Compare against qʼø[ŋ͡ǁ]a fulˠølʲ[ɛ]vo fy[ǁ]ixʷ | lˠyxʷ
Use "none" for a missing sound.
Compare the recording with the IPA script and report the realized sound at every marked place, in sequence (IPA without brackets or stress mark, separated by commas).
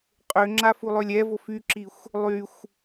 ŋ͡ǁ, ɛ, ǁ